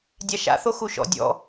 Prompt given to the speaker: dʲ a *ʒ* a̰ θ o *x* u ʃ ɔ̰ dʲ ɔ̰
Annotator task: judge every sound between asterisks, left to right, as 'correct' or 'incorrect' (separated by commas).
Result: incorrect, correct